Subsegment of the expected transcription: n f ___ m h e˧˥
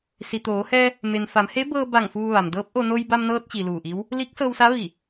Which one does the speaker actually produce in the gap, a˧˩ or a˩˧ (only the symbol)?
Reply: a˩˧